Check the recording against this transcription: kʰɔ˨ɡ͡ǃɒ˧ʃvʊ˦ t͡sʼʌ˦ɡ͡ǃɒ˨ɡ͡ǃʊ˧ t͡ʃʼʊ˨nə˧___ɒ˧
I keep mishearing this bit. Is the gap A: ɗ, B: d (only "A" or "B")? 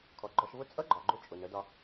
B